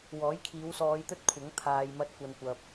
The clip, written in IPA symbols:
w ɔː˨˥ j kʰ iː˨˧ w s ɔː˨˧ j t̪ ɵ˥ t̚ kʷʰ ɐ˨˥ ŋ t̪ʰ aː˨ j m ɐ˧ t̚ kʷ ɐ˨ n kʷ ɐ˨ p̚

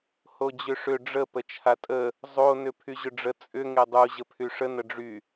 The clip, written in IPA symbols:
h o d͡ʑ ʏ ʂ ʏ ɖ͡ʐ ə p ə t͡ʃʰ a tʼ ə | zˤ o n ʏ pʰ y ʑ ʏ ɖ͡ʐ ə t͡sʼ ʏ ŋ e dˤ u ʑ ə pʰ y ʂ ə n ə ɖ͡ʐ y

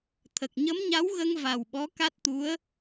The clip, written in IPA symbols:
t̪ʰ ə˨˩ k̚ ɲ ə˧˥ m ɲ a˧˥ w ɣ ə˧ ŋ v a˨˩ w ɓ ɔ˧˥ k a˦˥ t̚ t̪ u˧˥ ə̯

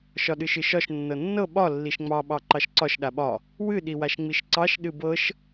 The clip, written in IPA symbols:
ʃ ɒ ɗ ɨ ʃ ɨ ʃ ɒ ʃ nː ɤ nː ɤ ɓ ɒ lː i ʃ ŋ͡m ɑ ɓ ɑ ǃ ɑ ʃ ǀ ɒ ʃ ɗ a ɓ ɒ | w ɨ ɗ i w a ʃ ŋ͡m i ʃ ǀ ɑ ʃ ɗ ɨ b ɤ ʃ

